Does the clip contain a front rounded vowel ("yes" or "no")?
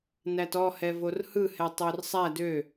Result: yes